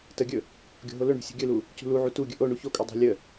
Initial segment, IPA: t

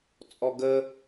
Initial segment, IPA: t͡sʼ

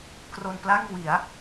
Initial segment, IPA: k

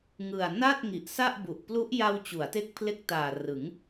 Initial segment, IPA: ŋ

